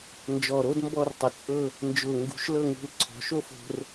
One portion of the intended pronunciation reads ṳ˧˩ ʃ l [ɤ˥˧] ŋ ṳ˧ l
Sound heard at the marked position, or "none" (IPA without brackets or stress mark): ɤ˥˧